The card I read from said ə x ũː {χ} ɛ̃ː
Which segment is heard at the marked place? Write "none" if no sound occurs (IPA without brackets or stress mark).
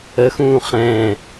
χ